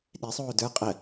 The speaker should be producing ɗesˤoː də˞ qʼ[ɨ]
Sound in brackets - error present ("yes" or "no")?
yes